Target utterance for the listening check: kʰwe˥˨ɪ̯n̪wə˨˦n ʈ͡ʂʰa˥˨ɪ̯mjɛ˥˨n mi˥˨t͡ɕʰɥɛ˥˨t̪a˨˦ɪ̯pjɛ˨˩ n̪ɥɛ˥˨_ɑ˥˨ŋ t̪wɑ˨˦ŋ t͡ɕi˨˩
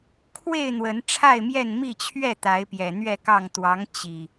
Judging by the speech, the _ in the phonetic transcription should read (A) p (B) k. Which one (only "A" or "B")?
B